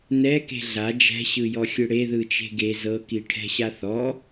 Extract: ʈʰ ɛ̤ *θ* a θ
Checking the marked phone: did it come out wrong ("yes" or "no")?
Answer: yes